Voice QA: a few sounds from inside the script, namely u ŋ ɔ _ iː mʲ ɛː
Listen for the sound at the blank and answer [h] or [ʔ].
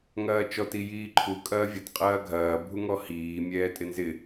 h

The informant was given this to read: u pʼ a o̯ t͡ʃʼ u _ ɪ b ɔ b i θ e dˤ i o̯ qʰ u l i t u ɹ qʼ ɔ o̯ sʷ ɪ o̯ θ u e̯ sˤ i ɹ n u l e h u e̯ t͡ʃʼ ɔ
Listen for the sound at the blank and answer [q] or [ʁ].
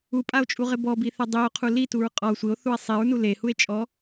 ʁ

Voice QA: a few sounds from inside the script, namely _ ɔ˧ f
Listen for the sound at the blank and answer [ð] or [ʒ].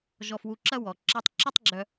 ʒ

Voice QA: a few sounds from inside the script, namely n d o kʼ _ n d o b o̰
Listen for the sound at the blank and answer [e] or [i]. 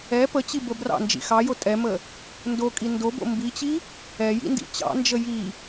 i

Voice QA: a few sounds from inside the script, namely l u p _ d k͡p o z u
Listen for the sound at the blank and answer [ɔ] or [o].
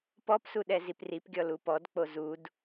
ɔ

